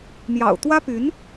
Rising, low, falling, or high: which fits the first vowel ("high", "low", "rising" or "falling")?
low